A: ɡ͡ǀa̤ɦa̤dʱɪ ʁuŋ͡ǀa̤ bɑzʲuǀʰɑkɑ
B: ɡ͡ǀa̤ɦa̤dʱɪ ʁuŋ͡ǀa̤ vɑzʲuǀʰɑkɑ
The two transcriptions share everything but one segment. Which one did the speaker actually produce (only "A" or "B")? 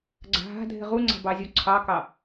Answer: A